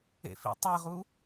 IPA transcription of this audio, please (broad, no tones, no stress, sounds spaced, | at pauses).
ḛ f ḭ tˤ e ʁ u